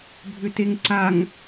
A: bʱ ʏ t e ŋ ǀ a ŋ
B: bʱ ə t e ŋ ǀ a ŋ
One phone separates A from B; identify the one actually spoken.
A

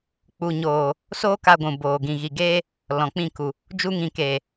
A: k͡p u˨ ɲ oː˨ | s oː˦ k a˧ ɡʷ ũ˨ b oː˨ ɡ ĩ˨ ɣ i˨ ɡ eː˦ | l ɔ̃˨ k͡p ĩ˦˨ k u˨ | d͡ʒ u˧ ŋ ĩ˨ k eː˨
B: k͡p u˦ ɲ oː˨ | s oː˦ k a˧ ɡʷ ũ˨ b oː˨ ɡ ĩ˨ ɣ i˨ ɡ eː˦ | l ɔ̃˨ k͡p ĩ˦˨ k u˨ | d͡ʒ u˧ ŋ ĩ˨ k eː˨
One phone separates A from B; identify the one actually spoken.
A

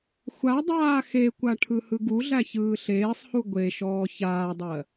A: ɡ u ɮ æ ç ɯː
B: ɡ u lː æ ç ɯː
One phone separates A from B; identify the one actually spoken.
A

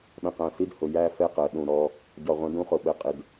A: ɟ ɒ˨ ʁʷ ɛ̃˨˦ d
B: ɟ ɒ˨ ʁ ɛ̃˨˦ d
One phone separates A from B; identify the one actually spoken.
A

